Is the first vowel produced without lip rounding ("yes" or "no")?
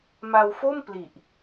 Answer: yes